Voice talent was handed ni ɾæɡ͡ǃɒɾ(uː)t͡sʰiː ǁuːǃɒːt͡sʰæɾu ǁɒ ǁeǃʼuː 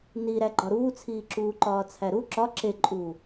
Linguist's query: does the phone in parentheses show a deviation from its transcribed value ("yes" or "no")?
no